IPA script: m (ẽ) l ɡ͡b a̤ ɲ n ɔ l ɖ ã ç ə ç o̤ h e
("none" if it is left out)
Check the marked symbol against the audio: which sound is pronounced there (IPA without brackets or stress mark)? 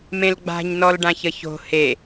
ẽ